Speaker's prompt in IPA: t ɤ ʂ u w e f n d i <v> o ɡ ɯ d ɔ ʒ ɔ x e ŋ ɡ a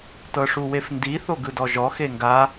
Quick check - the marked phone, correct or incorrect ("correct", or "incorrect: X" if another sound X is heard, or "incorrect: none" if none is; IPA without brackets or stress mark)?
incorrect: θ